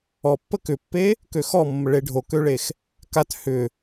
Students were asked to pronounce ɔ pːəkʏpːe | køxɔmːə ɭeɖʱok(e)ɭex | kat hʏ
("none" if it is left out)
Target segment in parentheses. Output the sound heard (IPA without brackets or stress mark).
ø